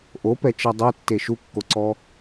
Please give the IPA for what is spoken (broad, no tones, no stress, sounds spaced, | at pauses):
ʔ o p ɛ t͡ʃ ɛ dˤ e tː e ʃ u kː o ǀ ɔ